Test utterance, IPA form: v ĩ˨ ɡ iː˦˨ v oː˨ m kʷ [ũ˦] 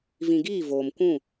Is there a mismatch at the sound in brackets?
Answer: yes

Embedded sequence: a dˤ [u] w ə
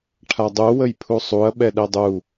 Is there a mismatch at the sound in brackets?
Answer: no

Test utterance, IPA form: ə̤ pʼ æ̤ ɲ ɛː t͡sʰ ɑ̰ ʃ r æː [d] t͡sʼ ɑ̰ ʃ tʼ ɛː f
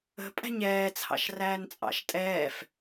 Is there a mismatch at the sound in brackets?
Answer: yes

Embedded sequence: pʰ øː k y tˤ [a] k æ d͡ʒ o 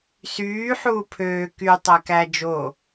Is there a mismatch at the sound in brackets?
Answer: yes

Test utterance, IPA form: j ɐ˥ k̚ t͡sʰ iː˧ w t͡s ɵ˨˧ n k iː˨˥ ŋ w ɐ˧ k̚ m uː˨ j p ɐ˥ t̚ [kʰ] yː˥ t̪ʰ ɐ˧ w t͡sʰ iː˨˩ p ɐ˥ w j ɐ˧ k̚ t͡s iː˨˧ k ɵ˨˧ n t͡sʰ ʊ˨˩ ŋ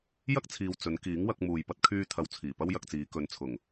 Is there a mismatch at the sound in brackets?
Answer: no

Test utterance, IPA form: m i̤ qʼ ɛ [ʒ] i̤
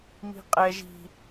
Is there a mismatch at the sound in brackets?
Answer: no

